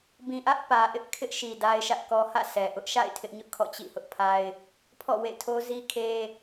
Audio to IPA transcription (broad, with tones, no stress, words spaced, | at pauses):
bĩ˨ʔä˦ʔ pä˨ʔɪ˦ʔ kʰɪ˦ʔʃi˨ da˦ɪ̯ʃä˦ʔkɔ˦ hä̰˦˨sɛ˨ʔʊ˦ʔ ʃa̰˦˨ɪ̯ tʰɪ˦ʔɲʊ˦ʔkʰɔ̰˦˨ t͡ɕḭ˦˨hʊ˦ʔpʰa˦ɪ̯ | pʰɔ̰˦˨wḛ˦˨tʰo˦ zi˦kʰe˦